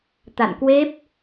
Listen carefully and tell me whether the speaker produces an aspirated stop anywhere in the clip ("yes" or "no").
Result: no